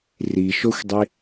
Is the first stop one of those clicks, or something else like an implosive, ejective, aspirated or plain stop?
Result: plain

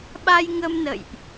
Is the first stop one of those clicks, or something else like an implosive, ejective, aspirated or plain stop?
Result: implosive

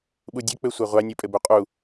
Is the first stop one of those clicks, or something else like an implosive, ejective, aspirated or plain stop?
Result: implosive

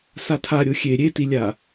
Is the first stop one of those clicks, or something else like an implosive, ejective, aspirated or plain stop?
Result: aspirated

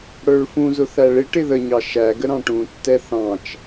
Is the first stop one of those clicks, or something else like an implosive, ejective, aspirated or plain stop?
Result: plain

